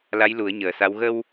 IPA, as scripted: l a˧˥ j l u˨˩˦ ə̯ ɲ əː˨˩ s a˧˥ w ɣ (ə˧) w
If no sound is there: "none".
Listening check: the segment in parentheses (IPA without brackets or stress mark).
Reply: ə˧